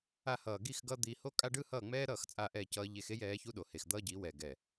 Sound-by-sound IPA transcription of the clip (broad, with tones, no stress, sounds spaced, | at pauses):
a˧ h ʌː˨ ɡ i˦˨ x ɡ ʌ˦ d̪ i˧ h o˦ kʼ a˦ ɖ ɯ˦ h ʌː˦˨ ŋ͡m ɛː˦ ɾ ʌː˦˨ x t͡sʼ a˧ ʔ ɛ˦˨ c ʌː˧ ʎ e˧ x e˦ j ɛː˨˦ ç u˦ ɗ o˨ h e˨ x d̪ ʌː˦ ɟ i˨˦ w ɛ˨ ɡ ɛ˨